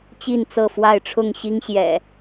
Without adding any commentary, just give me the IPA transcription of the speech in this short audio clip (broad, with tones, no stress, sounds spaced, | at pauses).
t͡ɕ i˥˨ n t͡s ɤ˥˨ f w a˥˨ ɪ̯ ʈ͡ʂʰ ʊ˥˨ ŋ ɕ i˦ ŋ ɕ j ɛ̰˨˩